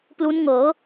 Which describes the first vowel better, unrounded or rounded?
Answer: rounded